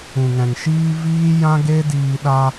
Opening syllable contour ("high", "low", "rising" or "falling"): low